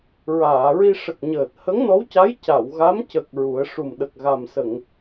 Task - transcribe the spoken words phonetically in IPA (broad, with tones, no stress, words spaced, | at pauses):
ɹaː˨˩˨ɹi˧ ʂə˨˩k̚ ɲəː˨˩t̚ hə˧˥ŋnɔ˧˥wca˧˥j ca˨˩˨wɣa˧˥m cə˨˩k̚ ɹu˨˩˦ə̯ ʂu˨˩mɗə˨˩k̚ ɣa˨˩msə˨˩˨ŋ